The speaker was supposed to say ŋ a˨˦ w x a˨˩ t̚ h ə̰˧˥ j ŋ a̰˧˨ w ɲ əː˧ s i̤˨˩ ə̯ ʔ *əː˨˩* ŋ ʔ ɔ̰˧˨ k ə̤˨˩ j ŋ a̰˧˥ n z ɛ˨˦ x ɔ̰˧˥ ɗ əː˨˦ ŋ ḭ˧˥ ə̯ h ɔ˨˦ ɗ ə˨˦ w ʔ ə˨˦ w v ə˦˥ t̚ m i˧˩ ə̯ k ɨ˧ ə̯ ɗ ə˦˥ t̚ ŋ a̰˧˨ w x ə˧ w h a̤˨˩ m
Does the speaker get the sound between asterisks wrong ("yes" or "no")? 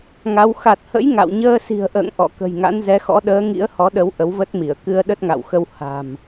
yes